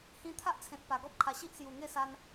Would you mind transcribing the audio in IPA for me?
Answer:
h ĩ˧ t̪ʰ a˦ ʔ t͡sʰ ẽ˨ t̚ p a˨˩ ɡ ɔ˦ p̚ kʰ a˨˩ ɕ i˦ ʔ s j u˨˩ ŋ e˥˧ s a˧ n

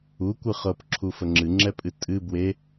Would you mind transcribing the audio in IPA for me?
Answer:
u kʷ ɨ χ ɤ p ǁʰ u f ə ŋ͡ǁ ɨ ŋ͡ǁ ɛ pʼ ɨ tʼ ɨ b w e

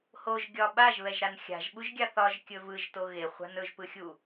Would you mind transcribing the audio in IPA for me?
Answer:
h o ʒ ɡʲ ɒ ɓ a ʒ β ɛ ʒ ɾ a n xʲ a̤ ʒ ɓ u ʒ ɡʲ a θ ɒ ʒ kʲ ɵ v ɯ ʒ t o ɣ e χʷ a̤ n ɵ ʒ p ɯ xʲ u

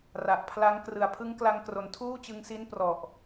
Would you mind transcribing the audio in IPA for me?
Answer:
r a˨˩ ʔ pʰ l a˦˥ ŋ k r ɯ˨˩ a̯ pʰ ɯ˦˥ ŋ k l a˧ ŋ k r o˩˦ n tʰ uː˥˩ t͡ɕ ɯ˧ ŋ s i˦˥ n p r ɔ˨˩ ʔ

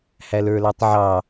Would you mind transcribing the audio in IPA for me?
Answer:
h æ l ə˞ l ɑ tˤ ʕ ɑ

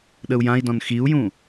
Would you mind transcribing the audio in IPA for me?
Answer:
ɗ ə u̯ j ã i̯ d ɔ̃ n x i u̯ j ũ

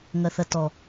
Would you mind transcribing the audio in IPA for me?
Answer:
ŋ ɐ θ ɐ t ɔ

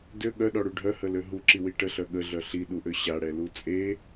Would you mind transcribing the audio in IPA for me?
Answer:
d ø ɠ œ ɗ ɔ ɽ u ɖʱ œ h ə l ø ɦ u ǁ i w i ʈ ə ɬ œ ɠ ə ɮ œ ɬ i ɗ u ʔ ø ɕ a ɽ ɛ l u t͡sʼ e

